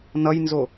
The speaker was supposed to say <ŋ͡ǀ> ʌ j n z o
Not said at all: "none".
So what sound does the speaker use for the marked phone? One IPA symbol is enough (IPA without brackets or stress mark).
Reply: n